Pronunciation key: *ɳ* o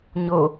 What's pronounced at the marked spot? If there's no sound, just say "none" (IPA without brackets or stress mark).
ɲ